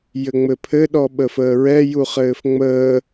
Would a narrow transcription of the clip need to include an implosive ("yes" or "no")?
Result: yes